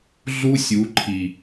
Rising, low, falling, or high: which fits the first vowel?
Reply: high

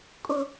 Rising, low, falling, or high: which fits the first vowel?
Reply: high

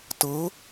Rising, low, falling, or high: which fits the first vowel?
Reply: rising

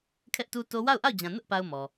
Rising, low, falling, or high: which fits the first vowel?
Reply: high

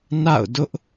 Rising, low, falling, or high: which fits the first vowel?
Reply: falling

